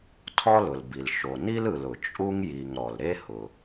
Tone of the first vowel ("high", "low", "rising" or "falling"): high